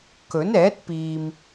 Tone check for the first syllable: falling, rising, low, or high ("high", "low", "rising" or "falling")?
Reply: rising